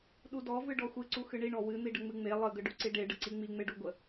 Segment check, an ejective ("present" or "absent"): absent